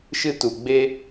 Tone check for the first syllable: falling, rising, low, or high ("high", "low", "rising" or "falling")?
high